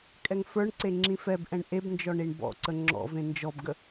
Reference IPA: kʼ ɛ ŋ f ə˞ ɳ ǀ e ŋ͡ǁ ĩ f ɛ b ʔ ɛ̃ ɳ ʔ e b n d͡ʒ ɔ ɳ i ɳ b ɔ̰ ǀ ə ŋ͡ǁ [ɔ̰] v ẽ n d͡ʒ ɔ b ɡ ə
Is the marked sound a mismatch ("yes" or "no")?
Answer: no